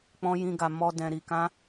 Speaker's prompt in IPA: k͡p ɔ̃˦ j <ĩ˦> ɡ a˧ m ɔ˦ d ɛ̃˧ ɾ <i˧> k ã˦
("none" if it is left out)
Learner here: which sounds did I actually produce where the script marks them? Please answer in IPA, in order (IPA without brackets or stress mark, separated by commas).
ĩ˦, i˧